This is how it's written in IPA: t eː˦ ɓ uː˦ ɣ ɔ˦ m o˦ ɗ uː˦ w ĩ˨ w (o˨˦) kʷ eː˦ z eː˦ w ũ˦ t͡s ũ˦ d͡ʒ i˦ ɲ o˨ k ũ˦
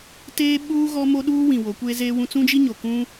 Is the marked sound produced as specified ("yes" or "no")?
yes